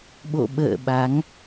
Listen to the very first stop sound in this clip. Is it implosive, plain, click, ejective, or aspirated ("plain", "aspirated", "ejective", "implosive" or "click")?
implosive